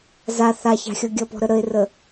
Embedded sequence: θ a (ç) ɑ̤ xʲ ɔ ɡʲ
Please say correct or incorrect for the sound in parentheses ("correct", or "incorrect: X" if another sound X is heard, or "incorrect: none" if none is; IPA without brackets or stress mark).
correct